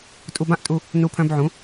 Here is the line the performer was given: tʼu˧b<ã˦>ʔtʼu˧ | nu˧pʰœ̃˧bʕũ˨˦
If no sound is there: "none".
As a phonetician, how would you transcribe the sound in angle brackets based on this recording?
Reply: ã˦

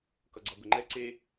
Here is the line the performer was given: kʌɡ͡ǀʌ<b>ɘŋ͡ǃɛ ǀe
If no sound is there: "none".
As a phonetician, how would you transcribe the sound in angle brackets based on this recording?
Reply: b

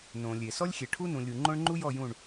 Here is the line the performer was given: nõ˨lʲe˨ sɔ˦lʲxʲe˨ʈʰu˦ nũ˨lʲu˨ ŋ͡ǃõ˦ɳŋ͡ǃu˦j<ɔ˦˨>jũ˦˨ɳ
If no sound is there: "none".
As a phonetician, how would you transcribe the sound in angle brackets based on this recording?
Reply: ɔ˦˨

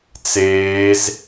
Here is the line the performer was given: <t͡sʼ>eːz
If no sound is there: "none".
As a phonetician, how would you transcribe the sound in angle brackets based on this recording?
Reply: t͡s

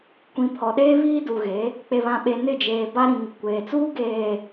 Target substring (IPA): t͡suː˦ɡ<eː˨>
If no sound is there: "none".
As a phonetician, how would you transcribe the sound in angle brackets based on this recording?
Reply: eː˨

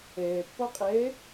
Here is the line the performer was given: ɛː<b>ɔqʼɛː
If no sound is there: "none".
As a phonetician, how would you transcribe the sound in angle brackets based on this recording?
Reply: pː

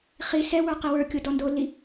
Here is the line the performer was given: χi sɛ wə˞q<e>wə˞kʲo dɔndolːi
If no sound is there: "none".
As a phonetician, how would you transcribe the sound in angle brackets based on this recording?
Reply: e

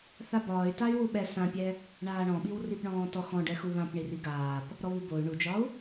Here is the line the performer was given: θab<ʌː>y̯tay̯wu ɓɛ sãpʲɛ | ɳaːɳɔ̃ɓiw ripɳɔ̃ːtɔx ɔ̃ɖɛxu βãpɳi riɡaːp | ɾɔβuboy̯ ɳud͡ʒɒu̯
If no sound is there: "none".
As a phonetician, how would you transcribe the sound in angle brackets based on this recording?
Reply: ɒː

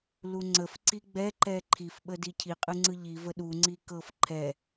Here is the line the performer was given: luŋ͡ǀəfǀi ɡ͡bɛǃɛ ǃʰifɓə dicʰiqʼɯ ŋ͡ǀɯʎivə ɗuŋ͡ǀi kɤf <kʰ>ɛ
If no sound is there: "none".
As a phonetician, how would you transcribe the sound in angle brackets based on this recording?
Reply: ǃʰ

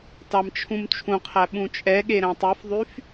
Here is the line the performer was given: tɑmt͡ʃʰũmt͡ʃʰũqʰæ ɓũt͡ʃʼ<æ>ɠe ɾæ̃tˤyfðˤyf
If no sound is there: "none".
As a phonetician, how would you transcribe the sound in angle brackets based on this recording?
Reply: ɛ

